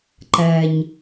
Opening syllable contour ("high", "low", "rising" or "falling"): low